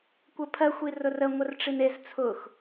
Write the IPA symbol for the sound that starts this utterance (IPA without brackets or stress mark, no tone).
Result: kʷ